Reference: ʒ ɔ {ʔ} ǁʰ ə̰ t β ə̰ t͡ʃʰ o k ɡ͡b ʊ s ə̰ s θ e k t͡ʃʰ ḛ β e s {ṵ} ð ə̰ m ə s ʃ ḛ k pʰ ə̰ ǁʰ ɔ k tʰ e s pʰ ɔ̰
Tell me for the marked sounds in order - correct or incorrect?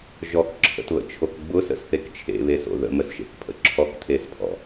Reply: incorrect, incorrect

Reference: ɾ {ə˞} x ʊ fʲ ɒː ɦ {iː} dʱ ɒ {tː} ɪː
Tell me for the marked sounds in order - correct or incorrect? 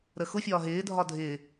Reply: incorrect, incorrect, incorrect

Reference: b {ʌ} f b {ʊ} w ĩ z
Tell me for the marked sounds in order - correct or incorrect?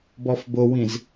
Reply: incorrect, correct

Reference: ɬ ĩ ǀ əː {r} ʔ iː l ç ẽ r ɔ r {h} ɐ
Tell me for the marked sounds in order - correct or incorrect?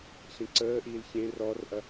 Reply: incorrect, incorrect

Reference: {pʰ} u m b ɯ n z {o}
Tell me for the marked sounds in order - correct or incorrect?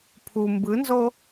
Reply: correct, correct

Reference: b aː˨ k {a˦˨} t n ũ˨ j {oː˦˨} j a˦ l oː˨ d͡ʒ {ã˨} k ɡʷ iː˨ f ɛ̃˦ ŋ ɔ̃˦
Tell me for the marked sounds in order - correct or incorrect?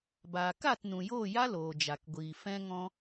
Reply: correct, correct, incorrect

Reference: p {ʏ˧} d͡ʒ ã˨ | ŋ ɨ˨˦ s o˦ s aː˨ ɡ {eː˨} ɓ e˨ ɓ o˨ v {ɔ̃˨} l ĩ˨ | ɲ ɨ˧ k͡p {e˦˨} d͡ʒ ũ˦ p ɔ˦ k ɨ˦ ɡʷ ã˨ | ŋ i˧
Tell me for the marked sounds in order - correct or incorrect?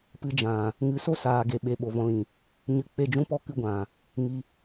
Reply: incorrect, incorrect, incorrect, correct

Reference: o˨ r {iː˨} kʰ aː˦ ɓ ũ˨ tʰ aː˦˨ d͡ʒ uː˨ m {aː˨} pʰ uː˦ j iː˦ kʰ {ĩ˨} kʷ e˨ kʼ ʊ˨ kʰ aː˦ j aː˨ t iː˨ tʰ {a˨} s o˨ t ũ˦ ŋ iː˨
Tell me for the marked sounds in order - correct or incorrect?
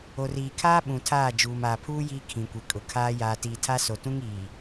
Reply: correct, correct, correct, incorrect

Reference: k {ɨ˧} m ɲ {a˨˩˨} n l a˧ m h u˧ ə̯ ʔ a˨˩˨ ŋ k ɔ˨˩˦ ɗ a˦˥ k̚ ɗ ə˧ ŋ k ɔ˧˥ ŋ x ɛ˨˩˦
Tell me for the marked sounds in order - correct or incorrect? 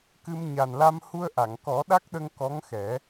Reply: correct, incorrect

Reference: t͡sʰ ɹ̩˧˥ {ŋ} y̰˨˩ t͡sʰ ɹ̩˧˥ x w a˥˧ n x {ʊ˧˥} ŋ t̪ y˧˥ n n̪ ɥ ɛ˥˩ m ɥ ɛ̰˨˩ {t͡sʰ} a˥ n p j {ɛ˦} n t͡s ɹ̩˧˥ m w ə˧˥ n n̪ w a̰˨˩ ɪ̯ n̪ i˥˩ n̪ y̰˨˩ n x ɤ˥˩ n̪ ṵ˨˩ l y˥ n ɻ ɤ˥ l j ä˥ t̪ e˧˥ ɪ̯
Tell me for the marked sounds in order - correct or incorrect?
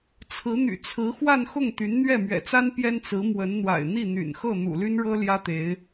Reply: incorrect, incorrect, incorrect, incorrect

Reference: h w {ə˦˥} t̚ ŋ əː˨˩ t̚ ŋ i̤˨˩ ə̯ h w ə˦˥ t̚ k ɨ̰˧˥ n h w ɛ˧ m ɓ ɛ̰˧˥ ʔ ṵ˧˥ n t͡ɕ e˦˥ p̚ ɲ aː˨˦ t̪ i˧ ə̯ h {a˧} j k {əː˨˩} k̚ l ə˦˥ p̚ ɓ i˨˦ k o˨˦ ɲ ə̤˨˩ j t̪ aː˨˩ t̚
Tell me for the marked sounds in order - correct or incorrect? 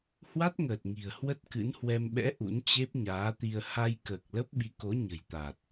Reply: incorrect, correct, correct

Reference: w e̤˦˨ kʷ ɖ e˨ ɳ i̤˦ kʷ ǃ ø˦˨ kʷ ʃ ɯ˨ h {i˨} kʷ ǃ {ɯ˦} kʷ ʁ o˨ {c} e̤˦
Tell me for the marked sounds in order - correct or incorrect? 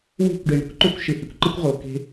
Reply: correct, correct, incorrect

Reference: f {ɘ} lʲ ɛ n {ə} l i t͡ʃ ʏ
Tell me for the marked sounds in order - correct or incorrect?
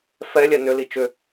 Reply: incorrect, incorrect

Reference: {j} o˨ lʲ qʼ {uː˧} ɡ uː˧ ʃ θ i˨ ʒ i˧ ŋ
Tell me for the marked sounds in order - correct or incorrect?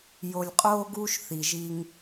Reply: correct, incorrect

